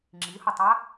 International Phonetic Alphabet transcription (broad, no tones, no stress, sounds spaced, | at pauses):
ŋ͡ǁ i h o tˤ a